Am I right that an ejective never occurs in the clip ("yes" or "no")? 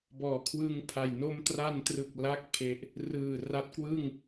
yes